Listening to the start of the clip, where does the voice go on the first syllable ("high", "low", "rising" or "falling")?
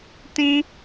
high